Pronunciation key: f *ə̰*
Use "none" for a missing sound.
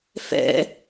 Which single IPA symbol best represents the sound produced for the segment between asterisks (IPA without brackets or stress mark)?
ɛ̰